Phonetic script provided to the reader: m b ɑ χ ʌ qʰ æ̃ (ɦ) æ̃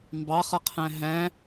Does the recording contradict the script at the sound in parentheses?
no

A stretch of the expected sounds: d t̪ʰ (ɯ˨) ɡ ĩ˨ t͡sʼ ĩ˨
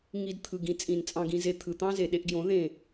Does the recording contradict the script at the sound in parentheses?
no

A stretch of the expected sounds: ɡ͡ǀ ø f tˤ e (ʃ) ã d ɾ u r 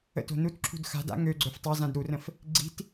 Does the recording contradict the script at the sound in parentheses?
yes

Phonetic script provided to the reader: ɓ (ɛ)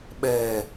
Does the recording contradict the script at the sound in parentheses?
no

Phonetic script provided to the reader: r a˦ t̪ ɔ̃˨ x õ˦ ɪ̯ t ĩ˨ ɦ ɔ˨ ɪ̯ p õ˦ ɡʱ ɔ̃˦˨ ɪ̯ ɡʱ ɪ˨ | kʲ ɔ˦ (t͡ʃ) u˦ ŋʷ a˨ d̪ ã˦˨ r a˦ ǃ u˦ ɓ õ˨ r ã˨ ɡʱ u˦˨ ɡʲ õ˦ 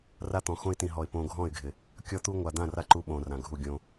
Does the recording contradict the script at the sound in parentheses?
yes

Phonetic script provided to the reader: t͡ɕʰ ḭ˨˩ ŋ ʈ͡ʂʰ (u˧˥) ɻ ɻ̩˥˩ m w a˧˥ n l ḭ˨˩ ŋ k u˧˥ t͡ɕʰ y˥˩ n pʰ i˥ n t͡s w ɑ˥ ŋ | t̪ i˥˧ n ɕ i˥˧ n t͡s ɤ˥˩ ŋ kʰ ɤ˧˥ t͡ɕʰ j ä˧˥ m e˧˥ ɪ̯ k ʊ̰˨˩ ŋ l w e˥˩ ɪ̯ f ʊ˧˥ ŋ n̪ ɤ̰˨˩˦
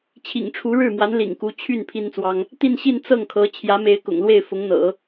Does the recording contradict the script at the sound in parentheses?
no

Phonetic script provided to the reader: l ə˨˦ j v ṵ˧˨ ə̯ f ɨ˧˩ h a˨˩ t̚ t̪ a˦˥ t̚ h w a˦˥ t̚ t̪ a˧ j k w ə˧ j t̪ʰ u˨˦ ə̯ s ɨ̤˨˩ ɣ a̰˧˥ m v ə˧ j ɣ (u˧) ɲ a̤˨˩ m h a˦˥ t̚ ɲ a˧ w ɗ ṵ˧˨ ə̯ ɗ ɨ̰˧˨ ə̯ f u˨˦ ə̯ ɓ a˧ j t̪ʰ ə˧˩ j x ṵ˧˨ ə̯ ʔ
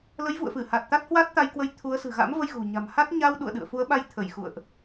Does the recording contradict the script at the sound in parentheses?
yes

